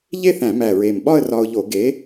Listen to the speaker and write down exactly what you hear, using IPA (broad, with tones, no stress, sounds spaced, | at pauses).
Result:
ʎ e˥˧ θ æ̃˧˩˧ m æ˨˩ ɹ e˨˩ m ɓ ɒ˥˧ ə̯ r ɒ˧ ʊ̯ ʎ o˧˩˧ ɡ e˨˥